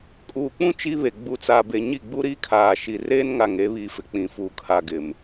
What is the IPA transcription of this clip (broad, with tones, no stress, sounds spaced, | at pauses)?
kʼ uː˨ k͡p ũ˦ t͡ʃ i˦ β e˨ ɡ͡b u˨ t͡s a˨ b e˨ ɲ i˦˨ ɡ͡b u˦ ɾ iː˦ kʰ aː˨ ʃ i˨ r eː˦ n ŋ a˨ ŋ e˨˦ β i˨ f ɪ˨ k͡p ĩ˨ f uː˨ kʰ a˨ ɡ ɪ˨ m